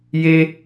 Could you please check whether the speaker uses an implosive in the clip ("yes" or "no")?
no